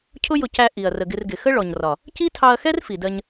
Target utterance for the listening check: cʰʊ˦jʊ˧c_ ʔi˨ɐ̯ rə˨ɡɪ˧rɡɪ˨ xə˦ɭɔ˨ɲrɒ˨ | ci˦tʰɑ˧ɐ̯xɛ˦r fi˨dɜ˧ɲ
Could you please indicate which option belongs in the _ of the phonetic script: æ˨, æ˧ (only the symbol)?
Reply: æ˧